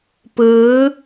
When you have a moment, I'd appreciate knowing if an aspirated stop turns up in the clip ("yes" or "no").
no